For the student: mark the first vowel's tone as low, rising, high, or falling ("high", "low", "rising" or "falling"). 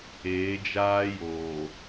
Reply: rising